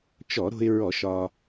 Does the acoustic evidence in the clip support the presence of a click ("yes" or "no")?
no